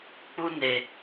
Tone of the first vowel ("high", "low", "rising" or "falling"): high